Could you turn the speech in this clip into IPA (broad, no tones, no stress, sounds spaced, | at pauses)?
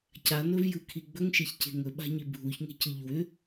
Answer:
c a n ɵ v j ɯ kʰ i ɡ͡b ɵ ŋ ʃ e ç c e̤ ŋ ɵ ɓ a̤ ɲ i bʱ u ç ŋ e̤ c ɯ ʎ w ʏ